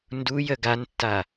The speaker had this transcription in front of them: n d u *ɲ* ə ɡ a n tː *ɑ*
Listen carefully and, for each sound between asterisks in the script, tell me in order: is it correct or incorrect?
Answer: incorrect: j, incorrect: a

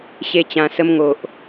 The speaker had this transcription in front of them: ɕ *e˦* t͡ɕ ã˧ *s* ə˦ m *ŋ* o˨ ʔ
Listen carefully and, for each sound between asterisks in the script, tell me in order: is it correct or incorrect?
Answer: correct, correct, correct

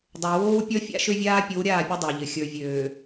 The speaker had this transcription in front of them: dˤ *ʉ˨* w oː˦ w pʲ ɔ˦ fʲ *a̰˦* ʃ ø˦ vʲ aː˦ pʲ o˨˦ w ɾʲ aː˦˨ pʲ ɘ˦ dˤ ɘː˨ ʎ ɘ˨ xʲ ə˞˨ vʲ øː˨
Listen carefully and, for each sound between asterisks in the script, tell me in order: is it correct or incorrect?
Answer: incorrect: ø˨, correct

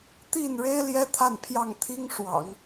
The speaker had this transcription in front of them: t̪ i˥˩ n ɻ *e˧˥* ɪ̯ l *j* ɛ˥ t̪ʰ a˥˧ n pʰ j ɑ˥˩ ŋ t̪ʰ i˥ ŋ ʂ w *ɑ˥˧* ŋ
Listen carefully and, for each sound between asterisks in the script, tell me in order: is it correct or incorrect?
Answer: incorrect: e˥, correct, incorrect: ɑ̰˨˩˦

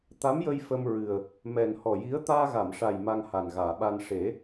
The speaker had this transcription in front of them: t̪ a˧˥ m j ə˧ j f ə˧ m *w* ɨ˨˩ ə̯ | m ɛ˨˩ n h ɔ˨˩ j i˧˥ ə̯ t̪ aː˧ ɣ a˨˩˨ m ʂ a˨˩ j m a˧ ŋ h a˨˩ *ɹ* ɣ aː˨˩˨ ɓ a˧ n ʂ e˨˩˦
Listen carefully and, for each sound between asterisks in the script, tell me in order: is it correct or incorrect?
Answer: incorrect: ɹ, incorrect: n

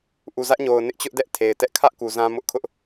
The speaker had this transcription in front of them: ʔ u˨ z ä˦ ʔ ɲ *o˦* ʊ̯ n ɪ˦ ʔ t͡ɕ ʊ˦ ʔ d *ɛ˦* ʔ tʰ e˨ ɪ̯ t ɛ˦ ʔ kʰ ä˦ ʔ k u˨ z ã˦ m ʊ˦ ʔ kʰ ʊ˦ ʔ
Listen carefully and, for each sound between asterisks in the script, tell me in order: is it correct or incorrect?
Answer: incorrect: o˨, correct

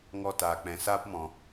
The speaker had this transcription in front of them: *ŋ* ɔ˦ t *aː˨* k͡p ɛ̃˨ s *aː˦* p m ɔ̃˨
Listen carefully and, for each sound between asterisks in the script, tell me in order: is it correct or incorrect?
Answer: correct, correct, correct

